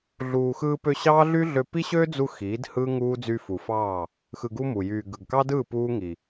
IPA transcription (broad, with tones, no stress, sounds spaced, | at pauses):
ɮ uː˨ x ɯː˧ p ø˧ ɕ ɑː˦ ɮ y˦ ɮ ø˧ p i˦ ɕ øː˦ d͡z u˧ x iː˨˦ d h ɯː˦ ŋ uː˦ d͡z y˧ f u˨ f ɑː˦˨ | x ɯ˧ ɡ u˦ m u˨ j yː˨ ɡ ɯ˨ ɡ k ɑ˦ d ɯː˦˨ p uː˦ ŋ i˨